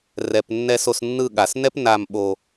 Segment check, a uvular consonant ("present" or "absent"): absent